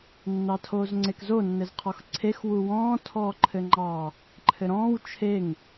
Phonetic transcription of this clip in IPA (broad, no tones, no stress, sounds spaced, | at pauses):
nː ɑ tʰ oː z ŋ͡ǀ e k z o nː ɘ z qʰ ɔ x ǀʰ e x w u w ɔ̃ː tʰ ɔː ǃʰ ɘ ŋ͡ǃ ɑ | ǃʰ ɘ ɾ ɔ̃ː w t͡ʃʰ e ŋ